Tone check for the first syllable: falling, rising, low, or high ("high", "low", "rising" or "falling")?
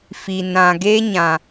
low